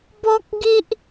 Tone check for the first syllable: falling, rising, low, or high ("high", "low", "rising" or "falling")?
high